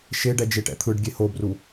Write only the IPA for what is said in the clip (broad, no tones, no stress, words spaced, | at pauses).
ʃeɖɛ d͡ʒeʈɛ̰t̪ʰɯɖɡʲe hobru